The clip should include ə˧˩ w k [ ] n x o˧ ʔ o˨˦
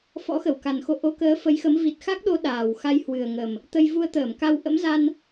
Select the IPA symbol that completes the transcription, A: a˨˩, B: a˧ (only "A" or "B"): A